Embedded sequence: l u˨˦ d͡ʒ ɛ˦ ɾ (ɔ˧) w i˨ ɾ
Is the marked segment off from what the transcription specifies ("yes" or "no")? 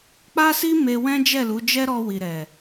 no